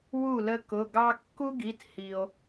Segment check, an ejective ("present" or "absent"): absent